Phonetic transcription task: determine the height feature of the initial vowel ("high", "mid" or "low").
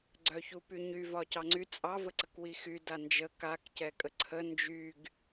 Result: mid